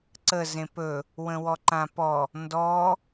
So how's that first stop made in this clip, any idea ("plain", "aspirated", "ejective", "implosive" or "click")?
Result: click